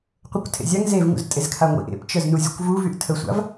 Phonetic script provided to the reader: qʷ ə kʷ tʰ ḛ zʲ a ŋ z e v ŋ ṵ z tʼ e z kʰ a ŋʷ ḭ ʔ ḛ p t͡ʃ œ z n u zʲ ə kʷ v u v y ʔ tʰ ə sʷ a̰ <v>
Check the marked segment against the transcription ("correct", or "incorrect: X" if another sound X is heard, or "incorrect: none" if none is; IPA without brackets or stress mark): correct